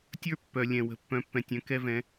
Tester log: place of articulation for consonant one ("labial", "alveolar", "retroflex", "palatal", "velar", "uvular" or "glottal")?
alveolar